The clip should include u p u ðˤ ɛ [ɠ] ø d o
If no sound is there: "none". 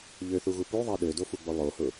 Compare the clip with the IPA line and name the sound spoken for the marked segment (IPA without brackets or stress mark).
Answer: ɗ